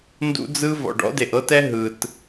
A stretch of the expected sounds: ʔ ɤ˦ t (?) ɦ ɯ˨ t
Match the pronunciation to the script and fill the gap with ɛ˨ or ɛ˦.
ɛ˦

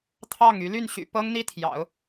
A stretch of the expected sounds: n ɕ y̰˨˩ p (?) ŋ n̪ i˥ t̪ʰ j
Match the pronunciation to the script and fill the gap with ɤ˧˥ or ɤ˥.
ɤ˥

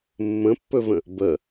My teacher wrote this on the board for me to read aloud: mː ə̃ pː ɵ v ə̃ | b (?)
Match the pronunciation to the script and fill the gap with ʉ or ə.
ə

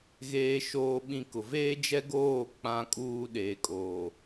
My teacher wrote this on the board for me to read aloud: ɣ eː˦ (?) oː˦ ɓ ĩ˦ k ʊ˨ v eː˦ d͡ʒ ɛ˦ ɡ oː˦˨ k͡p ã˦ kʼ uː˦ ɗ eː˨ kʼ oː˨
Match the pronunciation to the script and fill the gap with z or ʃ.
ʃ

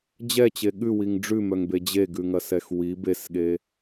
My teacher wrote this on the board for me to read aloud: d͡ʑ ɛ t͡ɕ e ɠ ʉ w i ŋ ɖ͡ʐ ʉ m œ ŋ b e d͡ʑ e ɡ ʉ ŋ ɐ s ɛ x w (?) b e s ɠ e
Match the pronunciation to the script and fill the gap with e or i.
i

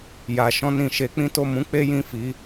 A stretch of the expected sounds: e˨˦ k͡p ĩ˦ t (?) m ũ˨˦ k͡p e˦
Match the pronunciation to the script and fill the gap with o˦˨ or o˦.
o˦˨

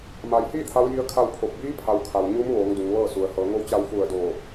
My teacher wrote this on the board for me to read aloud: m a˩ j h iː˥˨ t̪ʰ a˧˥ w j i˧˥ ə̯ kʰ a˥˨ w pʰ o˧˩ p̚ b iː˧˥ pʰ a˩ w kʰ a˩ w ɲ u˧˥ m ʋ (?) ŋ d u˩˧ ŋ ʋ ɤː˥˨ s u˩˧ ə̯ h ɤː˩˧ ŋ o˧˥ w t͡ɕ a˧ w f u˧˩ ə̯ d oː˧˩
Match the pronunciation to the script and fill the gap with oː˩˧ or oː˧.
oː˩˧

